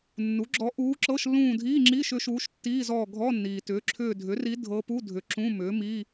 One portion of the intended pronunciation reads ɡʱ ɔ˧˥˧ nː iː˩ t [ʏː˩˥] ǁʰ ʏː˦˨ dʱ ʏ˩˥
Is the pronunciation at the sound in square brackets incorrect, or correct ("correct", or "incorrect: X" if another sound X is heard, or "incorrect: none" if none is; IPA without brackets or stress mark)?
correct